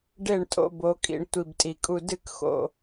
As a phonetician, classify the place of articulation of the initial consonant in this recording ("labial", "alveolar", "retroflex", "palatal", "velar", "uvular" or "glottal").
retroflex